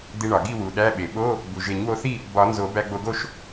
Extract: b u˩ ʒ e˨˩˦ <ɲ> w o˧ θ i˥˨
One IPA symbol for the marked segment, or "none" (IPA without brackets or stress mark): ɲ